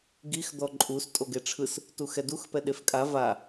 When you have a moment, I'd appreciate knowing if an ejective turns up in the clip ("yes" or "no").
yes